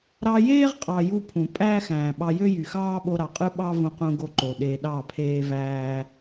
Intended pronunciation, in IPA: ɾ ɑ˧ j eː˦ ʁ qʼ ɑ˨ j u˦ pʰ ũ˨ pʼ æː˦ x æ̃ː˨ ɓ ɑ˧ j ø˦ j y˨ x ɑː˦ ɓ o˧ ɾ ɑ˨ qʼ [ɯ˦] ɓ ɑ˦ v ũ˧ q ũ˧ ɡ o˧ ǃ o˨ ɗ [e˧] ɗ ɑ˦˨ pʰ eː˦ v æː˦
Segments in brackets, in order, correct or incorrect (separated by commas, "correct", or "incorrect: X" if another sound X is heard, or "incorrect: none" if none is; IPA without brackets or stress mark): correct, correct